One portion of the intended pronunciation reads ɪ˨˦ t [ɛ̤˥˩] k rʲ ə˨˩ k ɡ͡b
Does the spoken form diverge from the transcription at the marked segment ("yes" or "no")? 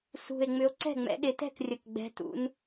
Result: no